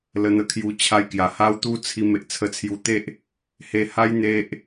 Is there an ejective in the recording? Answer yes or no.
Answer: no